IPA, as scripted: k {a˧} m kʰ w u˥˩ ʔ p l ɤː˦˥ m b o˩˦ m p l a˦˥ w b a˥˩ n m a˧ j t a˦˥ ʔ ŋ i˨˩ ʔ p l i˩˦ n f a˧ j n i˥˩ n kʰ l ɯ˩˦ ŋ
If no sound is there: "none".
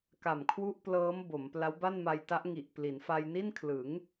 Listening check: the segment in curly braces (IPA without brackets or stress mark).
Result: a˨˩